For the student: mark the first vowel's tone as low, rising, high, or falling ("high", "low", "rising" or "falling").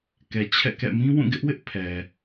low